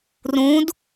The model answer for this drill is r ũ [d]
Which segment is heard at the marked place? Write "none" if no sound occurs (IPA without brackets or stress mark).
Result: d